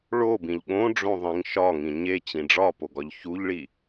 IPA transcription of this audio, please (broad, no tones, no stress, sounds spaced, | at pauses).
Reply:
ɭ o b ĩ ʎ ɠ õ ɖ͡ʐ õ ðˤ ĩ ŋ ʃ ɒ ŋ ĩ ɲ e t͡ɕ ĩ ɖ͡ʐ ɒ p o ɡ ɒ ʎ ç u ʎ ɭ i